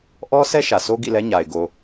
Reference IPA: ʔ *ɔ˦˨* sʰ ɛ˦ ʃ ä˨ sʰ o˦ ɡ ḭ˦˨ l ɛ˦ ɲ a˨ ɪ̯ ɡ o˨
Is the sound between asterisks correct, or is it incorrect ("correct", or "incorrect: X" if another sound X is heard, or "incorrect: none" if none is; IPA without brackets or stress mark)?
incorrect: ɔ˦